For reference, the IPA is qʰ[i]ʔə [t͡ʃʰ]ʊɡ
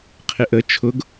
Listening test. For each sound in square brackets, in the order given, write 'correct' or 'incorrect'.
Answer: incorrect: ɪ, correct

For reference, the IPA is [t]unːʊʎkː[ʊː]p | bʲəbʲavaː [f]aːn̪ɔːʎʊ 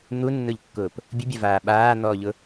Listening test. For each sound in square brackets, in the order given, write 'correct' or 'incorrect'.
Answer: incorrect: n̪, correct, incorrect: ɓ

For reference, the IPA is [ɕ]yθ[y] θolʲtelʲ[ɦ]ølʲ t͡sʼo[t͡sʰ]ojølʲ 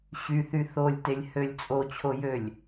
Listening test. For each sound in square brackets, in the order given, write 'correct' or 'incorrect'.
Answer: correct, correct, incorrect: h, incorrect: t͡ɕʰ

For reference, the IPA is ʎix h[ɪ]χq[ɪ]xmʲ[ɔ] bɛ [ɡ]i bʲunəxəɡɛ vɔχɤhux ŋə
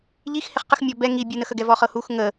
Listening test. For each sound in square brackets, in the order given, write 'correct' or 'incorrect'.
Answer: correct, incorrect: ə, correct, incorrect: ŋ

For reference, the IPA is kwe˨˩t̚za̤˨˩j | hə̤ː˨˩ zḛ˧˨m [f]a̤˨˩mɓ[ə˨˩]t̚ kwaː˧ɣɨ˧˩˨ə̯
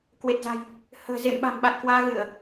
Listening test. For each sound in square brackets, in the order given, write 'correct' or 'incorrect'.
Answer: incorrect: ɓ, incorrect: a˨˩

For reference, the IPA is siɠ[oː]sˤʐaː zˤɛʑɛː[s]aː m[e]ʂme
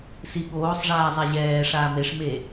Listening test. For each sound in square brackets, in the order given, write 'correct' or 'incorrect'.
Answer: correct, incorrect: ʂ, correct

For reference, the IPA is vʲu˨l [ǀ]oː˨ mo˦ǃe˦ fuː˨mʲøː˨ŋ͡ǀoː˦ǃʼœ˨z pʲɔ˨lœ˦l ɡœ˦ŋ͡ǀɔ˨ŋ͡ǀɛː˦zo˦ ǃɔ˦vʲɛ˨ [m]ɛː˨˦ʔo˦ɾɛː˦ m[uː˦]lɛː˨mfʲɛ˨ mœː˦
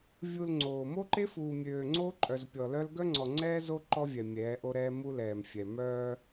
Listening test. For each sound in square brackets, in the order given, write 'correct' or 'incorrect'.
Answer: incorrect: ŋ͡ǀ, incorrect: mʲ, incorrect: u˦

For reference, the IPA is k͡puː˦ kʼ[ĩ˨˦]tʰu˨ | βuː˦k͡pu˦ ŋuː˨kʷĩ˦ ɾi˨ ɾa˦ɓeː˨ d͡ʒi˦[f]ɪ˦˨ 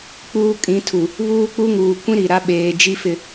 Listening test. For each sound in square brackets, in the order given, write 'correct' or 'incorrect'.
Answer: correct, correct

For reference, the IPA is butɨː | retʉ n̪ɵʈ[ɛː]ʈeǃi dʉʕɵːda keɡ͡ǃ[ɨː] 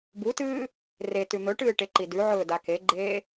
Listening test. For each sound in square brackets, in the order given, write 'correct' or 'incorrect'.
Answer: incorrect: ɨː, incorrect: eː

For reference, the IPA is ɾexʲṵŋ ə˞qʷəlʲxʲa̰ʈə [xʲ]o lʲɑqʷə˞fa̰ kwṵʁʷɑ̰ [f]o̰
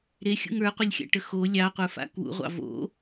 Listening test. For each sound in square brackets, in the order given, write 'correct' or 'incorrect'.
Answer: incorrect: x, incorrect: v

